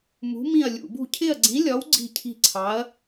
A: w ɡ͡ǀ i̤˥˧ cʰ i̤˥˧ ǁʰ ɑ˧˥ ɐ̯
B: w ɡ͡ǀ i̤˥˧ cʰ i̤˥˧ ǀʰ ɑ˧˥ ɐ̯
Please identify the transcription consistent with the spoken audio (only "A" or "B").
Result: B